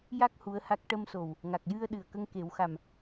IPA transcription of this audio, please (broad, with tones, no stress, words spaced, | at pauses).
ja˦˥k̚ hu˧˥ə̯ha˦˥k̚ ʈə˧mso˨˩w | ŋa˨˩k̚jɨ˧ə̯ ɗɨ˨˩ə̯kə˧ŋke˨˩˦wxa˨˩m